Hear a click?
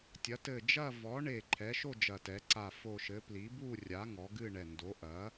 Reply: yes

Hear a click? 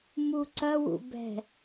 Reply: yes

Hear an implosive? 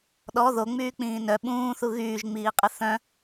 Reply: yes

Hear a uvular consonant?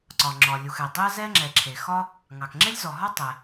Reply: no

